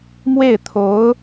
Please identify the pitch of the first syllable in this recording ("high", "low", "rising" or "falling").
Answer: falling